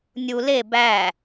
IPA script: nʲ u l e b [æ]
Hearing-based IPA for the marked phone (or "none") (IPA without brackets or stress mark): æ